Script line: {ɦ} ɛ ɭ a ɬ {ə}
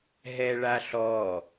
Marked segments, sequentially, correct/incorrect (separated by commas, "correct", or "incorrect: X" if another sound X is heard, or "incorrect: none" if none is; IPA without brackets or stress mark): correct, incorrect: ɔ